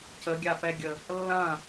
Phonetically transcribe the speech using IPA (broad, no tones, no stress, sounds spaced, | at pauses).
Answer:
c ə ɡʲ a p ɛ ɡʲ ə | lː ɐ̃